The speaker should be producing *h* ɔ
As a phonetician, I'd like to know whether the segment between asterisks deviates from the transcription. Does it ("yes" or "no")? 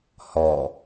no